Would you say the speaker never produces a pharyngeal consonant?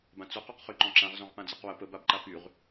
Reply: yes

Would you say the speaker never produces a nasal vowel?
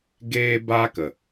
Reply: yes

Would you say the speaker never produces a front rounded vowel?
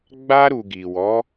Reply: yes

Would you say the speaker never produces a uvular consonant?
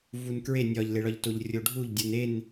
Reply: yes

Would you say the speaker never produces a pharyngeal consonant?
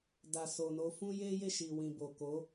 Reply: yes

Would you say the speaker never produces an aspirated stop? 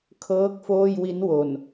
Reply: no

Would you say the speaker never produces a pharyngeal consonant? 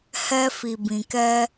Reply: yes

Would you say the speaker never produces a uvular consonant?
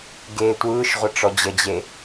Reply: no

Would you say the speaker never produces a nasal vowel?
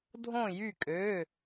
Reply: no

